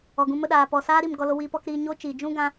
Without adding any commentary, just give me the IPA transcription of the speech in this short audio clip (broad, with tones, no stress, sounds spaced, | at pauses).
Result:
ɔ˨ ɡ ũ˧ m ə˧ ɗ aː˨ p ɔ˨ s aː˦ ɾ i˦˨ m ɡ ɔ˧ l o˧ w iː˧ p ɔ˧ k ɾ iː˧ ɲ o˦ t͡ʃ iː˨ d͡ʒ ũ˦ ɡ ã˧